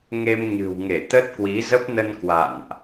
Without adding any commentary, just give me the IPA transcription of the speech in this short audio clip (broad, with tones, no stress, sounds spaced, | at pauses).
ŋ e˧ m ɲ ɨ̤˨˩ w ŋ e˧˩ t̪ ə˦˥ t̚ k w i˨˦ z ə˦˥ p̚ n ə˧ n k w a̰˧˨ n ʔ